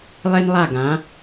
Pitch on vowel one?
high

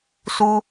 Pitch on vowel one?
high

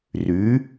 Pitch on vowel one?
rising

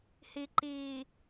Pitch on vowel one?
low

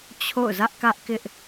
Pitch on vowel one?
falling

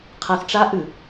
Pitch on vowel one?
low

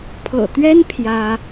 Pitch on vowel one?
low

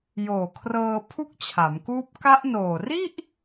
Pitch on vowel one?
low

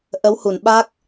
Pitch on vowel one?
rising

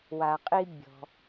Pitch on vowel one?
low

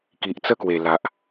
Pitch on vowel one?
low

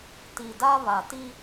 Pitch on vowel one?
low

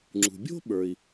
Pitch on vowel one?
low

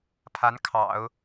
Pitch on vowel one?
rising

